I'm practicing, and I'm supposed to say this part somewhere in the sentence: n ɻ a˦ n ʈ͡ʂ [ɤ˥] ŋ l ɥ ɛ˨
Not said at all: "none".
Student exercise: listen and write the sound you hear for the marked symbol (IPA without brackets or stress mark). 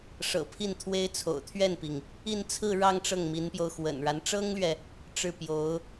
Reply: ɤ˥